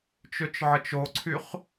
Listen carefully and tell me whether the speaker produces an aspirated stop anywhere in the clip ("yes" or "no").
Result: yes